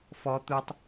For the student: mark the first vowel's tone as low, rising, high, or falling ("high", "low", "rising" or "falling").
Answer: high